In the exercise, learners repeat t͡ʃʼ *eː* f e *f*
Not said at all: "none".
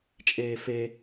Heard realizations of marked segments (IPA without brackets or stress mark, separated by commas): eː, none